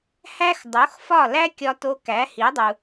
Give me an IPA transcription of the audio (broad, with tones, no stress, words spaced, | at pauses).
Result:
hæ˥x dˤo˩˥xfɒ˥˩læ˥ kʲɒ˧to˧ kæ˩˥hi˩˥dˤu˩